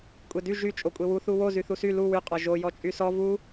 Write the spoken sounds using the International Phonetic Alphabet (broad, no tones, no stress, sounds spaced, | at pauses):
kʷʼ e d y ʒ y t͡ʃʼ o kʷʼ e w u θ u w o z y θ u s y l u w y qʼ ɒ ʒ o j ɔ t͡ʃʼ y s ɔ v u